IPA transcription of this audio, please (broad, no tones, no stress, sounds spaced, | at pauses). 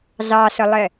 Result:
z ɑ s ə lˠ ɛ